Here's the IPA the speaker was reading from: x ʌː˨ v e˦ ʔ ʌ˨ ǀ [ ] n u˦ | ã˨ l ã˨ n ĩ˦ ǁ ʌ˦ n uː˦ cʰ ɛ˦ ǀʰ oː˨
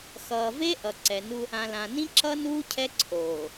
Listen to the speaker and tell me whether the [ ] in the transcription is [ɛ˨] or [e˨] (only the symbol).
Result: ɛ˨